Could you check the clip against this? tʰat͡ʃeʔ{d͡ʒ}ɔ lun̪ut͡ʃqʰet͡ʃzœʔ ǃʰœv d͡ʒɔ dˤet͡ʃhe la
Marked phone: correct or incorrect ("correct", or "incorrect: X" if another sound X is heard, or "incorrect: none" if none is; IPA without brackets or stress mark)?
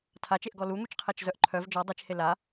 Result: incorrect: ɡ